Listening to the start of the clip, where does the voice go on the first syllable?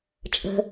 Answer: low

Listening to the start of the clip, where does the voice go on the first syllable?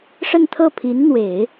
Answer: falling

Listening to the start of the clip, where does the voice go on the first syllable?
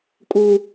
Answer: high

